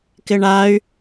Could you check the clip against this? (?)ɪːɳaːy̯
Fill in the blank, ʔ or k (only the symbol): k